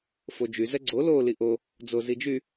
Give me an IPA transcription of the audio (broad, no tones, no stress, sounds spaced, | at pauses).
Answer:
f o d͡ʒ y z ɛ ɡ͡ǀ o l o l i ʔ o | d͡z o z i d͡ʒ y